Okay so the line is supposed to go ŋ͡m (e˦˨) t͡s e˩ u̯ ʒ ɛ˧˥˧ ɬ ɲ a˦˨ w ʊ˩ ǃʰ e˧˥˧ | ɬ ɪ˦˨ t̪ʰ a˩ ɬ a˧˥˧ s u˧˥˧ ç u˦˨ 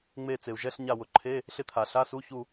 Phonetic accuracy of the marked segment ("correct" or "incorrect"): correct